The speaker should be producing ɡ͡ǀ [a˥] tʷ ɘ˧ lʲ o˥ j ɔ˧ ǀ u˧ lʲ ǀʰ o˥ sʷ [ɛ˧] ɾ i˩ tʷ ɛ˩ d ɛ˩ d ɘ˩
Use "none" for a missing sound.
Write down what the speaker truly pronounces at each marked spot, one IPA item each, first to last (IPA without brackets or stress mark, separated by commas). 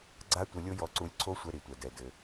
a˥, ɛ˧